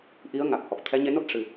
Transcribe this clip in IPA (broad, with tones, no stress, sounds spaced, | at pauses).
ʔ i˧˥ ə̯ ŋ a˨˩ k̚ h ɔ˨˩ k̚ t̪ʰ ɛ˧˥ ɲ e˧˥ n o˦˥ t̚ ʂ ɨ˧